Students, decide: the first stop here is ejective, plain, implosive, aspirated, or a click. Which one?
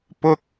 plain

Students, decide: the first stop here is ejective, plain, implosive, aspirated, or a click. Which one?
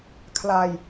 aspirated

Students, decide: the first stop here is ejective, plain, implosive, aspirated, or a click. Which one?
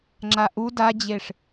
click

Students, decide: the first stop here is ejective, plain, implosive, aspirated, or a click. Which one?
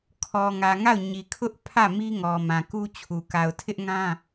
aspirated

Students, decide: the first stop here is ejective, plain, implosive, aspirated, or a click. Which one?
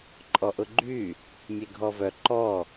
click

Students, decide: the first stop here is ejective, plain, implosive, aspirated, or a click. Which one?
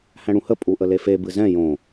ejective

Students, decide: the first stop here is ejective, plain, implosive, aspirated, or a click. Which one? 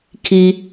aspirated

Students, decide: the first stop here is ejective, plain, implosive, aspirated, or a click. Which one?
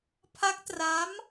aspirated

